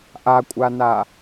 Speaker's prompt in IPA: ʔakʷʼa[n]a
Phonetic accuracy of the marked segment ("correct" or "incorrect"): correct